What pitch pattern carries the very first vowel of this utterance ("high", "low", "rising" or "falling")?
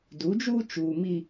rising